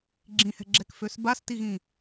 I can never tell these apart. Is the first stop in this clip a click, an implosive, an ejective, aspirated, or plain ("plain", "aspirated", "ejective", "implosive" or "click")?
click